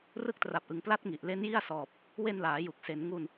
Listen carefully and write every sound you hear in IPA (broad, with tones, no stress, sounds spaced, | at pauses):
r ɯ˦˥ k̚ t r a˨˩ p̚ ʔ ɯ˩˦ ŋ p l a˦˥ t̚ ŋ i˨˩ ʔ l e˦˥ n j i˥˩ a̯ s ɔː˨˩ p̚ | w e˧ n l aː˩˦ j u˨˩ k̚ s e˩˦ n ŋ u˧ n